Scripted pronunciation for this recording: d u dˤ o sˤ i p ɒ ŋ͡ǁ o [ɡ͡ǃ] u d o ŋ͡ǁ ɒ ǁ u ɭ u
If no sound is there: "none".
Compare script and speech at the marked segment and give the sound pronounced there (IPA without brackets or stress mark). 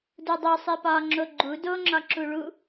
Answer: ɡ͡ǃ